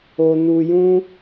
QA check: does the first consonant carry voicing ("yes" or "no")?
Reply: yes